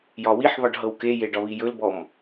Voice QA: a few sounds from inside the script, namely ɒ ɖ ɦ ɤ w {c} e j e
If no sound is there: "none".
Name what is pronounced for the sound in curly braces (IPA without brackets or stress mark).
k